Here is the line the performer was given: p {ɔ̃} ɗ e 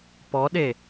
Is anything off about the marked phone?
yes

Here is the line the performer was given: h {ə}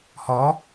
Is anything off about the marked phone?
yes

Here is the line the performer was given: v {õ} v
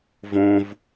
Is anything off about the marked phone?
no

